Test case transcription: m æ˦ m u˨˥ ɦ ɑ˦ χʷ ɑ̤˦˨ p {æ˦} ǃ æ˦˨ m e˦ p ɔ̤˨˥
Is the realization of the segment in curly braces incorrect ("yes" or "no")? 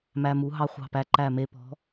no